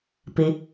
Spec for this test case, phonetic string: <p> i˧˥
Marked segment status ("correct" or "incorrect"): correct